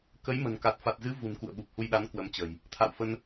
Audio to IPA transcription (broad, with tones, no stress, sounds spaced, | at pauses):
k ə˨˦ j m ə̤˨˩ n k a˨˩ t̚ f a˨˩ t̚ z ɨ˨˦ v ṳ˨˩ n k ṵ˧˨ ə̯ ɓ u˨˩ p̚ h u˧ j ɗ a˨˦ n k w ə˨˦ m t͡ɕ ə̤˨˩ j | t̪ʰ a̰˧˨ w f ə˧ n